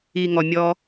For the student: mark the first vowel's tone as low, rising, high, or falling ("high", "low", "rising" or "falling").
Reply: low